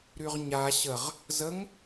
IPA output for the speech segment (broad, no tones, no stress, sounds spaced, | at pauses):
ɾ y ʁ ɲ a ɕ ə ʁ | z ə ŋ